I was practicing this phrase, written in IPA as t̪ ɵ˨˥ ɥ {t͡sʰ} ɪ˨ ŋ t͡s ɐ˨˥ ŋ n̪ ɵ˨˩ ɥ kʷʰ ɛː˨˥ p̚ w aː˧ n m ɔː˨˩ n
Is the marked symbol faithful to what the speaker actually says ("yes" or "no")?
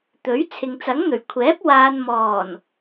yes